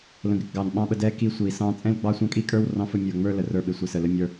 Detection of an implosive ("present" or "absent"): present